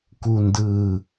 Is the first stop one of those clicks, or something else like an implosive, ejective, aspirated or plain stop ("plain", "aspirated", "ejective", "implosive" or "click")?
plain